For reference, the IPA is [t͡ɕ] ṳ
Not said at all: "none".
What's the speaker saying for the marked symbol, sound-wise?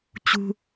t͡ɕ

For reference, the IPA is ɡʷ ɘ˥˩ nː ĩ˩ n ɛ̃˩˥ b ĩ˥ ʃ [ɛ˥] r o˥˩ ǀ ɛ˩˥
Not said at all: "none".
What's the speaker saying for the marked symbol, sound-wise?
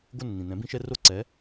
ɛ˥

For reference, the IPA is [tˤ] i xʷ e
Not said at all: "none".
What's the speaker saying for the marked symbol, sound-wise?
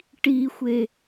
ʈ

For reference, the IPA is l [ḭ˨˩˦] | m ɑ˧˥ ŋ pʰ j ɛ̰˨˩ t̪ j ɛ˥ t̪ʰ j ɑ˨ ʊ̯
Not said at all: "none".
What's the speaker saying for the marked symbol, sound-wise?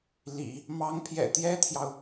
ḭ˨˩˦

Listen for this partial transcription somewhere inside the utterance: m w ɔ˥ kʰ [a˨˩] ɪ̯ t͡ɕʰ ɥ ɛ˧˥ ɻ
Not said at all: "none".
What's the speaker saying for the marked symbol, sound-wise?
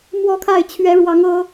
a˥˩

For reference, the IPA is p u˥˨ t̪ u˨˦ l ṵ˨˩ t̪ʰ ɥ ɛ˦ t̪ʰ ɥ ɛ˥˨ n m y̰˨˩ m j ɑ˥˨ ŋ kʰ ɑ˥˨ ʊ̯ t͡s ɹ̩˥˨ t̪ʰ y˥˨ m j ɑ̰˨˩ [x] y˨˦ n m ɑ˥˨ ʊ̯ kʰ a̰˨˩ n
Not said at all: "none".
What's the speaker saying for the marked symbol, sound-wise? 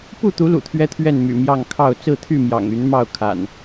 ŋ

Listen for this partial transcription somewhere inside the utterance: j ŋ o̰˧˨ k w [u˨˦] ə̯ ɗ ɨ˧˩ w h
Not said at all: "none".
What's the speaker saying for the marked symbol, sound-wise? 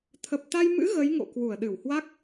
u˧˩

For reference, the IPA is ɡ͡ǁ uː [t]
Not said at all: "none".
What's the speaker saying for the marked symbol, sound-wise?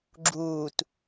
t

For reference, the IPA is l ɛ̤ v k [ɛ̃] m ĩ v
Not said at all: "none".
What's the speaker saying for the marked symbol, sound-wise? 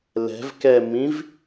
ɛ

